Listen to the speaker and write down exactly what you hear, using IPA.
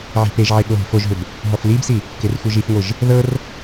ʕ i̤ p e ʒ ʕ e ɠ o ɦ i̤ f o ʒ ɦ ʏ b | ɦ ɔ f l i b s i | k e r xʷ ɯ ʒ i f ŋʷ ɯ ʒ | ð ɤ r

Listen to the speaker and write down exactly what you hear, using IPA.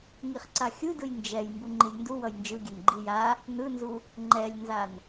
ŋ i χ ǀ a xʲ ɯ d ɯ j n d͡ʒ ɛ j m b u ŋ͡ǃ i lʲ n d u w ʌ j n d͡ʒ ɯ ɡʲ ɛ n ɡ͡ǃ i j a | n ɯ n z u | ŋ͡ǃ ɛ lʲ n z a n

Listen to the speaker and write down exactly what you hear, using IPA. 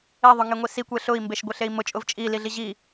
e ðˤ ʊ ŋ e ŋʷ i s i kʷ e ɬ ʊ i̯ m b e ʃ ɡʷ e ɬ e i̯ m ʊ t͡ʃʼ ʊ v t͡ʃʼ i l i ɮ i ʑ i

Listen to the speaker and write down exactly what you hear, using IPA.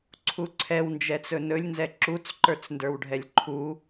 ǀʰ u ǀʰ ɛ w n d͡ʒ ɛ t͡s ɵ n ɵ lʲ n z ɛ ǁ u t͡s ǃ ə˞ t͡s n d ə˞ w ɖʱ ɛ lʲ ǃʰ u

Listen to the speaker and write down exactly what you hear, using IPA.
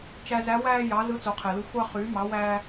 t͡ʃ æ˧ z æ˧˥ w æː˧ j ɑ˩˧ z ɯ˧˥ t͡s o˩˧ qʰ e˩ l ɯ˧ xʷ ɑ˧ χ yː˩˧ m ɑ˩˧ w æː˧

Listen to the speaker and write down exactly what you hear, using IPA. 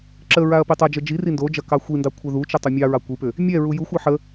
ǁ ə ɹ a ɐ̯ p i tˤ ɐ d͡ʒ ə d͡ʒ i r i n d o d͡ʒ ɐ k ɑ xʷ i n d ɑ kʷʰ ɛ ð u t͡ʃ ə tˤ o mʲ ɑ ɹ ɑ kʷ i p ʏ | mʲ ɛ ɹ u j u xʷ a ħ ə

